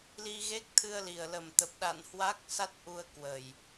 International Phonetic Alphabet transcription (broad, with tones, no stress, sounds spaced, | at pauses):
l i˧ ɣ e˦˥ k̚ t̪ʰ ɨ˧ ə̯ l i˨˩ ə̯ l ə˨˩ m t̪ ə˨˩ p̚ ɗ a̰˧˨ n h w a˦˥ k̚ s a˦˥ t̚ ʔ u˧ ə̯ k w ə˨˩ j